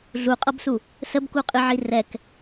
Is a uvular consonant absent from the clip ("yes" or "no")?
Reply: no